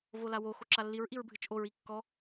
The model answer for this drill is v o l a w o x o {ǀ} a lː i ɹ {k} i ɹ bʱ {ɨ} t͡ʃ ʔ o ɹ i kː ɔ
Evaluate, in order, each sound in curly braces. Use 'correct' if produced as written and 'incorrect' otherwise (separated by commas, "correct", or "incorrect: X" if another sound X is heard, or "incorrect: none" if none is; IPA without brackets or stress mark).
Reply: incorrect: ǁ, incorrect: ʔ, correct